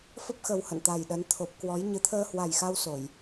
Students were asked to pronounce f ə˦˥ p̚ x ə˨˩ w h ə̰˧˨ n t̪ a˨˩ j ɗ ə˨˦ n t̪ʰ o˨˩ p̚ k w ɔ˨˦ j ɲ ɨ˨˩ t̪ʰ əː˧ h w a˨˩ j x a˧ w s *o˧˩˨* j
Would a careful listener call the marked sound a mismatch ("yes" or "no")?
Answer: no